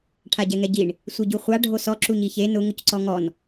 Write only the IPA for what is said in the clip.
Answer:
ʈʰ a ɟ ɛ ŋ ɛ ɟ i ɳ | sʷ i ɟ u χʷ a ɖʱ o s ɔ ǁ u ɲ i ç e n ʊ ŋ ʊ c ǀ ɔ ŋ ɔ n

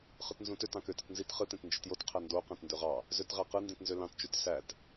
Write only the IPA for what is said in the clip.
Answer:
χ ɯ t n z ũ t ø t ɑ̃ k ø t ɯ t n z i t χ ɯ t ẽ t n d͡ʒ i t j o t qʰ æ n d o q æ̃ t n d ø ʁ ɑ | z ø t ʁ æ q ɯ n d ĩ t n z ø l ɑ̃ t t͡ʃ y t s æ t

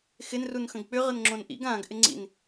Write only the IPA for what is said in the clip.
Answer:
x ɪ n r u n x ə̃ ɡ k͡p ʏ ʁ ə n ŋ͡ǁ õ n ʔ ḭ ɡ ã ɡ ʔ ɪ ŋ͡ǀ ḭ n

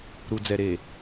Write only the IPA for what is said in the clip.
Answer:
ɾ u˨ d͡z ɛ˨ ɾ eː˨

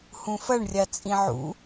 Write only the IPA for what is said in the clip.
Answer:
h ũ f ɐ ɳ rʲ a t͡sʼ ĩ ʕ ṵ

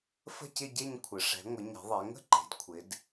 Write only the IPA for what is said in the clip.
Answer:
f ə̤˥˧ c ɪ˥˧ ɟ e˥˧ ɲ kʷʰ ə˩˧ ʂ ɛ̤˩˧ ŋʷ ɪ˩˧ ɲ ɛ̤˩˧ ðˤ e˩˧ ŋ ə̤˥˧ ǃ e̤˩˧ d kʷʰ ɪ˩˧ d

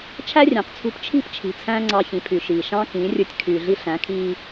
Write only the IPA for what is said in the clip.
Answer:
t͡ʃʰ æ˦ rʲ æ̃˨ q t͡sʰ ṳ˧ p t͡ʃʰ i̤˦˨ p t͡ʃʰ i̤˨ t͡sʰ æ̃ː˦ ŋ͡ǀ ɑ˧ ç ĩ˨ pʰ y˨ ʃ iː˨ ʃ ɑ̃˦ k ĩ˨˦ rʲ ɯ˧ tʲ kʰ y˨ ɮ i˧ ɬ æ̃˨˦ kʰ iː˧

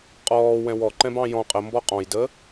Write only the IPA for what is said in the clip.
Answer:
qʼ ɔː w ɛ̃ w ɔ ǃ ɛ̃ b ɑ̃ j ɔ̃ qʼ ə m b ɔ qʼ ɔ̃ j d əː

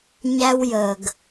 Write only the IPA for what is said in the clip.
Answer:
ɲ æ˦ w j ə˨ ɡ

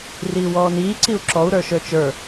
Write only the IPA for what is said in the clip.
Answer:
r iː w ɔː n iː ǀ i u̯ ǁ ɔ u̯ ɾ ə˞ ʃ ə˞ t͡ʃ ə˞

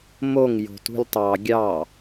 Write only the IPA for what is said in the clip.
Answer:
m o ŋ j o̤ t ṳ lʲ tˤ ɑ ɡʲ ɑ

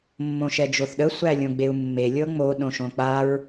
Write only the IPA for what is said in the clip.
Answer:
mː õ ʃ ɛ d͡ʒ o θ ɗ ə sʷ æ lʲ õ ɡ͡b e u̯ mː e lʲ ɤ ŋ͡m o ɗ õ ʃ õ k͡p a ɹ

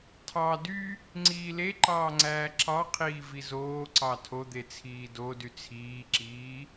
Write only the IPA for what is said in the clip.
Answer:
tʰ ɑ d y | ŋ͡ǀ iː l e ǃ ɑː ŋ͡ǀ æː ǁ ɑ qʰ iː v i z oː ǀ ɑ tʰ o d̪ e t͡sʰ iː d o d y t͡sʰ iː ǁ iː

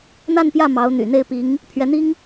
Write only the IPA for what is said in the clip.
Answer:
n̪ a˥˧ n p j ä˥˩ m ɑ˧˥ ʊ̯ n̪ y̰˨˩ n̪ e˥˩ ɪ̯ p i˧˥ ŋ | pʰ ɥ ɛ˧˥ n̪ i˥ ŋ

